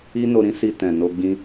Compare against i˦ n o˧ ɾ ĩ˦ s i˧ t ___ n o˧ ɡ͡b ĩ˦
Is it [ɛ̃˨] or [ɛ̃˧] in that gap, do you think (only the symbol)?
ɛ̃˨